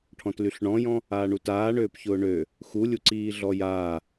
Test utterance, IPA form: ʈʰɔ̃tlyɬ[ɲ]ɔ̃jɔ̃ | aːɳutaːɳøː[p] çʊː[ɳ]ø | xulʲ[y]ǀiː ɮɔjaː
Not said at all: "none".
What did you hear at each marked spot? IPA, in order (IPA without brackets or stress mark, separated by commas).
ɳ, p, ɳ, u